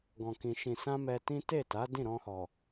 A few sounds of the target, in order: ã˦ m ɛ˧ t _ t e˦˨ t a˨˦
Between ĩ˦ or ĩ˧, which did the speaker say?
ĩ˦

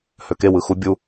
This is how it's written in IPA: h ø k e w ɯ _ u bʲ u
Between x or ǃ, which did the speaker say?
x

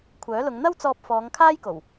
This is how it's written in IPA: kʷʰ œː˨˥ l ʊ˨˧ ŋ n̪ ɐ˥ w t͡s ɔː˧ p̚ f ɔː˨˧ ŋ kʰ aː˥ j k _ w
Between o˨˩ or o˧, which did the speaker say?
o˨˩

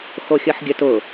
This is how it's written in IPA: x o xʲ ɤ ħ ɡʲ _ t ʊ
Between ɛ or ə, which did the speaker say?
ə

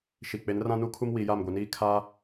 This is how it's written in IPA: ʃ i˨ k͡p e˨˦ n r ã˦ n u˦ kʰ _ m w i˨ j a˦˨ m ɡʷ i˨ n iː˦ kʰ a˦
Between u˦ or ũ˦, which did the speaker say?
u˦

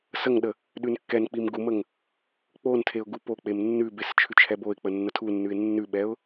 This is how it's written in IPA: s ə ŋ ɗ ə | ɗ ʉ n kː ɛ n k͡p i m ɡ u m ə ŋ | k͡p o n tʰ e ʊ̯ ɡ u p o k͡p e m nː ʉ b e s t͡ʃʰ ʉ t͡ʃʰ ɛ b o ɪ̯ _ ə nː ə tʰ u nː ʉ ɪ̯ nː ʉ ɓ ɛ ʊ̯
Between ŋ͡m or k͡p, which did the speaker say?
k͡p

